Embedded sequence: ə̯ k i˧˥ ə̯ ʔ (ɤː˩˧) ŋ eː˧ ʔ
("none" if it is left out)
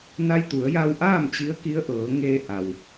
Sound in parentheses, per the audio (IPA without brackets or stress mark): ɤː˩˧